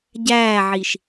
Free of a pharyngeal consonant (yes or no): no